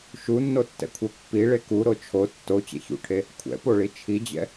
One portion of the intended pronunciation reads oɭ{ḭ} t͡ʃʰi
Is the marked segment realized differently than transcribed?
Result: yes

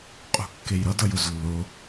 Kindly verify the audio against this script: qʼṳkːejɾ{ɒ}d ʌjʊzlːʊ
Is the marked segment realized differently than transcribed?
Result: yes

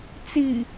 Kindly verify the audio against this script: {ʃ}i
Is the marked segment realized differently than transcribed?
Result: yes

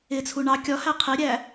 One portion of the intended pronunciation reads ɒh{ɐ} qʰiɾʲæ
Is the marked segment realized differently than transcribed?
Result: yes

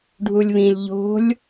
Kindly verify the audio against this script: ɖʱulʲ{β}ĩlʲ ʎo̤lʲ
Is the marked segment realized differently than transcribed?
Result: no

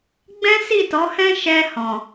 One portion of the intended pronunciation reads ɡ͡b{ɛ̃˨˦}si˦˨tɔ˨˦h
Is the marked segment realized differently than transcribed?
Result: yes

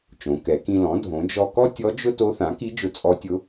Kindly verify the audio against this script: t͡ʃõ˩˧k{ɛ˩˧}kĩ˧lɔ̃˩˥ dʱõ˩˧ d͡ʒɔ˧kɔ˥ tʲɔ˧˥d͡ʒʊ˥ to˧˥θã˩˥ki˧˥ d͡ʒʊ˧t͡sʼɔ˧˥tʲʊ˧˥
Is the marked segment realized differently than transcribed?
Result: no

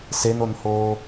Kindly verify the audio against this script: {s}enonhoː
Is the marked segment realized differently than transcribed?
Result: no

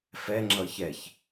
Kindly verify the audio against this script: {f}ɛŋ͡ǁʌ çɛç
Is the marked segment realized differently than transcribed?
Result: no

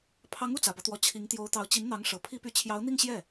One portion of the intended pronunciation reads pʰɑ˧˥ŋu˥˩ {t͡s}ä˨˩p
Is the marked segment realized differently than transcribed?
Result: no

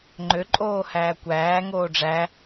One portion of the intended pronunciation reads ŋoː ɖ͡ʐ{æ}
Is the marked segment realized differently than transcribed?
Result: no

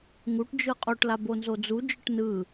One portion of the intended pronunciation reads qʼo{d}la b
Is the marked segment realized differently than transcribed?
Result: yes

